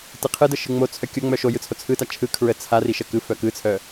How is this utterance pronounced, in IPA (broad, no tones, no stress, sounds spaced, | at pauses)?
t ɯ qʰ ɯ d ə ʃ ɯ ŋ͡m o t͡sʰ œ kʲ o ŋ͡m œ ʃ o j ɯ t͡sʰ o t͡sʰ ɯ t a t͡ʃʰ ɯ kʰ ɹ ə t͡sʰ a r i ʃ ə k ɯ f œ k ɯ t͡sʰ œ